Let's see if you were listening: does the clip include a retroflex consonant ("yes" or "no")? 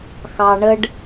yes